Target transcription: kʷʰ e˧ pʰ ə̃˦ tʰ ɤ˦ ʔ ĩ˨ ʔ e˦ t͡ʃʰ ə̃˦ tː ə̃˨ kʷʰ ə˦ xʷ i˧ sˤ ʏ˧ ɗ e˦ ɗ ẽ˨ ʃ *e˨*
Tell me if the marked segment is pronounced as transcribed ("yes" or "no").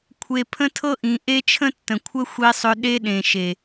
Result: yes